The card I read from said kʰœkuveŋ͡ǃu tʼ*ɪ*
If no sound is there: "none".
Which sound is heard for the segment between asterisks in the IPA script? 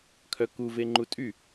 y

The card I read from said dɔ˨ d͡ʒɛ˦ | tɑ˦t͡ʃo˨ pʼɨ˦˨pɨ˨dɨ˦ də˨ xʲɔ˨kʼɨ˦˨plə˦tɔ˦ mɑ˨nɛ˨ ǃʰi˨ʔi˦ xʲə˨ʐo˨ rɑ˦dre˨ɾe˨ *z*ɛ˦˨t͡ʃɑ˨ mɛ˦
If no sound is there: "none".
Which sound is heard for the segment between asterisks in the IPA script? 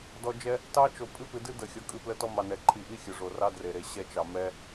ɕ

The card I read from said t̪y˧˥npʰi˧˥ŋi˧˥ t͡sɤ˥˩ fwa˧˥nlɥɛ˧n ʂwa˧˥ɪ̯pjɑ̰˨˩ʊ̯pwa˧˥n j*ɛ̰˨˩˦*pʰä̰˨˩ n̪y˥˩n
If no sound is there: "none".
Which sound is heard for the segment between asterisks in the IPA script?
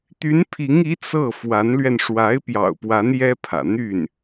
ɛ˥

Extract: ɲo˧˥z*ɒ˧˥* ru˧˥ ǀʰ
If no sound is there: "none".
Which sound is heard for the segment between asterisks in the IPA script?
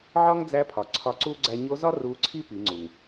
ɒ˥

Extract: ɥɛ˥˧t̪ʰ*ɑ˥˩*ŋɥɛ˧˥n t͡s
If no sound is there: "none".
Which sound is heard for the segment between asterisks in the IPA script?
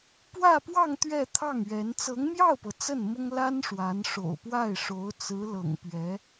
ɑ˥˩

